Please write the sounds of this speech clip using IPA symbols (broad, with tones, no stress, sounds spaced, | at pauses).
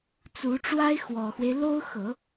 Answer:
t͡s u˧˥ ʈ͡ʂ w a˥ ɪ̯ x w ɔ˨˩ x w e˦ ɪ̯ l o˥ ʊ̯ x ɤ˨˩˦